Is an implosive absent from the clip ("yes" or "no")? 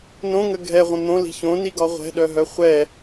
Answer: no